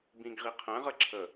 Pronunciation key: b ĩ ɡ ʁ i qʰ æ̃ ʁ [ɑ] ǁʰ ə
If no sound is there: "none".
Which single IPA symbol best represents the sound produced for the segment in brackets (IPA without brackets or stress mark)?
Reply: ə